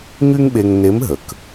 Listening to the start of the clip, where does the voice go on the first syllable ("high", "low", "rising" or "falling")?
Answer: high